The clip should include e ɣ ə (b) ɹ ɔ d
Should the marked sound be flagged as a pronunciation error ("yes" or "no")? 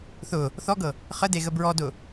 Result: no